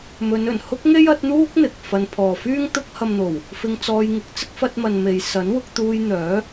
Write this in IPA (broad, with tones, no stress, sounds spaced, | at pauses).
m ɵ˨˧ n ɵ˨˩ n h ʊ˥ k̚ ŋ e˥ j ɐ˨˥ t̚ n̪ uː˥ k̚ n̪ ɪ˨ k̚ f ɐ˧ n pʰ ɔː˨ f yː˥ ŋ t̪ ʊ˧ k̚ h ɐ˨ m n̪ o˨˩ w | f ɪ˧ ŋ t͡s ɔː˧ j ŋ ɪ˨˥ k̚ t͡s ɪ˥ k̚ f ɐ˧ t̚ m ɐ˨ n m e˨ j s ɐ˨˥ n w ʊ˧ k̚ t̪ uː˧ j n̪ œː˨˥